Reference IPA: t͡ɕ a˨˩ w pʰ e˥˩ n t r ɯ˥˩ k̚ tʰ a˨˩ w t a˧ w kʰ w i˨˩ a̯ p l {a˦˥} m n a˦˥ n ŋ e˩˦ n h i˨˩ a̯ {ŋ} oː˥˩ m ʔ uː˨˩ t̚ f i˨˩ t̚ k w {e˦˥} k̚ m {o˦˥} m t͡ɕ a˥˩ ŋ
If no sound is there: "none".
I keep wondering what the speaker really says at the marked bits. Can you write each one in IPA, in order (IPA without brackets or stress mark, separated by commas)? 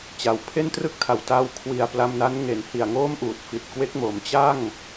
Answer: a˧, ŋ, e˦˥, o˩˦